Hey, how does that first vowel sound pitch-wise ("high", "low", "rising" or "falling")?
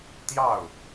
falling